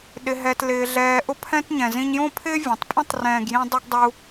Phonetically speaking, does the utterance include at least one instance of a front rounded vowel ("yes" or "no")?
no